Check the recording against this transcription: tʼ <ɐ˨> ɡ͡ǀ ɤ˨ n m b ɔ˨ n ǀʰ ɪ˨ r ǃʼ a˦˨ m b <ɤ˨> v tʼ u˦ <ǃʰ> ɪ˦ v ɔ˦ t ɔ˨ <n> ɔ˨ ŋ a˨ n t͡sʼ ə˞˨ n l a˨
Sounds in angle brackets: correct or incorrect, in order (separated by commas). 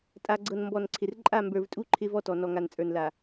incorrect, incorrect, correct, correct